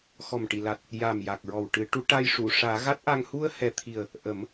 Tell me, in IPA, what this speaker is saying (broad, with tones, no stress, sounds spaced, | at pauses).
x ɔ˨˩ m ʈ i˨˩˨ l a˨˩ t̚ | j a˨˩ m j a˨˩ k̚ ɹ ɔ˨˩ w ʈ ɨ˨˩˦ ʈ u˧˥ ʈ a˧ j ʂ u˨˩˨ ʂ aː˨˩˦ ɣ a˦˥ t̚ ʔ a˧ ŋ h u˧ ə̯ h ɛ˨˩ t̪ʰ i˨˩ ə̯ | ʔ ə˨˩˦ m